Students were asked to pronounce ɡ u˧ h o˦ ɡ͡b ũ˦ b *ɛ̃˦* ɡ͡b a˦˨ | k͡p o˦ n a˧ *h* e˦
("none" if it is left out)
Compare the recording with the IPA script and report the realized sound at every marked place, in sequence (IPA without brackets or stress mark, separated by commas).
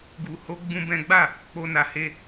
ɛ̃˦, h